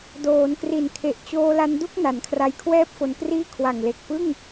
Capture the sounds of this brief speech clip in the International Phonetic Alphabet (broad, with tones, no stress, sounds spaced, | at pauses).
d oː˩˦ n k r i˨˩ n kʰ e˨˩ ʔ t͡ɕ oː˧ l a˧ n d u˥˩ k̚ n a˩˦ n kʰ r a˧ j kʰ w ɛː˥˩ p̚ f o˧ n k r iː˥˩ kʰ w a˨˩ ŋ l e˨˩ k̚ p ɯ˥˩ ŋ